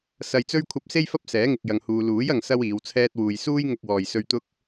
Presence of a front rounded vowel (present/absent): absent